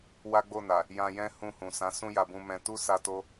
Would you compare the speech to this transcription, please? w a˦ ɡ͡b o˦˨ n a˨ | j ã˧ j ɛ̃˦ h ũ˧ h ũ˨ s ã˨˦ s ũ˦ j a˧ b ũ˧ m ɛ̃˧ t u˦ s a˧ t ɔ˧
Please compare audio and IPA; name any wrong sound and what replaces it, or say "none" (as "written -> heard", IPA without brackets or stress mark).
ɔ˧ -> o˧